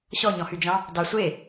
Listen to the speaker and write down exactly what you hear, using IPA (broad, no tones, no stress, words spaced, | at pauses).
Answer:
ɕɔɲɔ̃hyd͡ʒɑ̃ | dɑ sʷe